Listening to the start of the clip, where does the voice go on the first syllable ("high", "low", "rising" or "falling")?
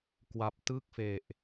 low